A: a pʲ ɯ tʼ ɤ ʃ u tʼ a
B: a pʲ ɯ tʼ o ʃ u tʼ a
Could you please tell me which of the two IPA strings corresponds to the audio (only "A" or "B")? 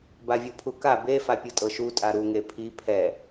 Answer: A